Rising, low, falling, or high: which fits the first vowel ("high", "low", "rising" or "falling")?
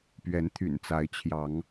rising